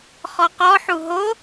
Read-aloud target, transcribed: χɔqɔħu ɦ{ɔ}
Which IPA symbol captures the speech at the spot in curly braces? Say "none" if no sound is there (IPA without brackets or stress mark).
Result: o